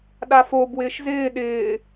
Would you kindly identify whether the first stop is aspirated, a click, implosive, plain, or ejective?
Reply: implosive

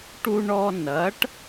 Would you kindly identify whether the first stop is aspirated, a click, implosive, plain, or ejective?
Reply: plain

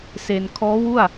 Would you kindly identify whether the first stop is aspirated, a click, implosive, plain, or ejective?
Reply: aspirated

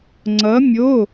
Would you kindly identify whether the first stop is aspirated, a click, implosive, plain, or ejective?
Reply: click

